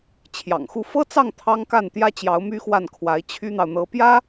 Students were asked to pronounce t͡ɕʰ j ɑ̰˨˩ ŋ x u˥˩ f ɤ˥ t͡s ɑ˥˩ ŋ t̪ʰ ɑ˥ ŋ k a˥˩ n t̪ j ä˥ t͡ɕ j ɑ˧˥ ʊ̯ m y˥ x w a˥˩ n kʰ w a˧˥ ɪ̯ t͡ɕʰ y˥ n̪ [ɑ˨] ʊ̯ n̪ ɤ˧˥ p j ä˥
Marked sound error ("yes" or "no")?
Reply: no